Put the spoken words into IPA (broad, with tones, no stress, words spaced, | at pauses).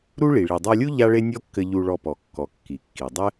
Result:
ɾu˥ɭi˩ ɭi˩dˤa˧lʲu˥ ʎa˥ɭe˥ nʲɔ˥kːɘ˧ ʎu˧ɭɔ˧pɔ˩kːɔ˩ kːi˩kːi˩ dˤɘ˥